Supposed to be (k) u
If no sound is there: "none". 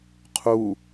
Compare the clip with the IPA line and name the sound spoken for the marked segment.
qʰ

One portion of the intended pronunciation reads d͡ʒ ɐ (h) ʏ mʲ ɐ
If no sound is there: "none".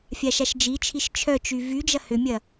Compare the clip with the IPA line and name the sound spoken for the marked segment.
h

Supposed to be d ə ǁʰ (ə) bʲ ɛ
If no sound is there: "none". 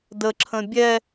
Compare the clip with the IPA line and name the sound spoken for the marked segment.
ə̃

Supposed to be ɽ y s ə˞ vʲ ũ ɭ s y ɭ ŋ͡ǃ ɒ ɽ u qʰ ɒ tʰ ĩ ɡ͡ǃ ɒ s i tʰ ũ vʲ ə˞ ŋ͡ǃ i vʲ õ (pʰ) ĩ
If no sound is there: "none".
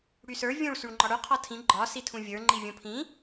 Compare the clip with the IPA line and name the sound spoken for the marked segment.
pʰ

